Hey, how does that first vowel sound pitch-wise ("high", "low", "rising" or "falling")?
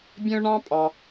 high